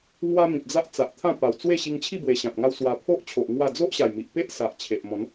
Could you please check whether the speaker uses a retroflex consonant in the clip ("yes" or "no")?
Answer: no